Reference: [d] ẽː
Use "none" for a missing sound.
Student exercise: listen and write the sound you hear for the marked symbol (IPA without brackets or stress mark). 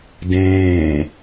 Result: d